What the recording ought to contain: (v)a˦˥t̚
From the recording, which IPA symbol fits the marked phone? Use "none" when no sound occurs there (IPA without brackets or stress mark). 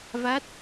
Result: v